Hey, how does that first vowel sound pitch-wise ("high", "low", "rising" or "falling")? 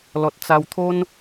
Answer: low